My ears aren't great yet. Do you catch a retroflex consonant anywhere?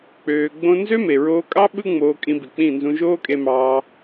no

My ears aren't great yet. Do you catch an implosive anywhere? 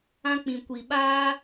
yes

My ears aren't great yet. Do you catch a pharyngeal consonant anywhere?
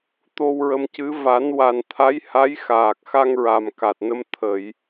no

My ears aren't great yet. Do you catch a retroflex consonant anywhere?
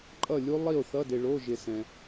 yes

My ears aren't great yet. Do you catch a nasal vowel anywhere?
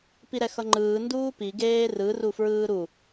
no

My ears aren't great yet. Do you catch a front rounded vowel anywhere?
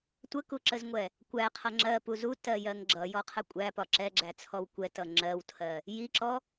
no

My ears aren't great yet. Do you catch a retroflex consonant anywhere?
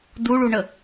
yes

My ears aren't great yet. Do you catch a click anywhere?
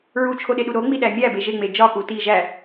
no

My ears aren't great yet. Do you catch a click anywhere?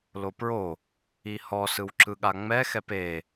yes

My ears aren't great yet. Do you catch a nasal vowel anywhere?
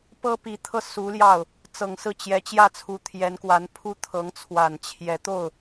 no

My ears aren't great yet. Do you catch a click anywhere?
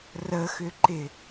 yes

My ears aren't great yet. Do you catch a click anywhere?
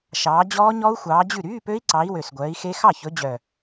yes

